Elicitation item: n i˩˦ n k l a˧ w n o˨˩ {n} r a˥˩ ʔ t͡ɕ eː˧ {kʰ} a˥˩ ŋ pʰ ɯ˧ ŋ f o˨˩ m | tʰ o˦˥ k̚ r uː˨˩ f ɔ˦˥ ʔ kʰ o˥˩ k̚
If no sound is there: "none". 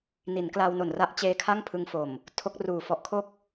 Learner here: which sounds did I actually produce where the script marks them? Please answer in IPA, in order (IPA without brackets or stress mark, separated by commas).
n, kʰ